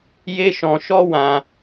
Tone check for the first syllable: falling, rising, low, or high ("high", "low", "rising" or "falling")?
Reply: high